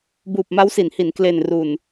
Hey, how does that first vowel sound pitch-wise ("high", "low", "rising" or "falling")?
low